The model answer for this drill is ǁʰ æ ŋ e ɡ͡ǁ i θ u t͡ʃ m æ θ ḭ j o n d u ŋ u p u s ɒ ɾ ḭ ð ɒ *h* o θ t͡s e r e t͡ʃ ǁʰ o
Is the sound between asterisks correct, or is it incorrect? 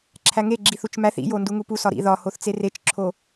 correct